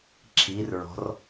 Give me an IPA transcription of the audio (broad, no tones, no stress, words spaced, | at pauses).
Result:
ǁʰirɹɔ̤r